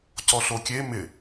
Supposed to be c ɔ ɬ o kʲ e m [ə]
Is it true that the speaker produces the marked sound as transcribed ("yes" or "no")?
no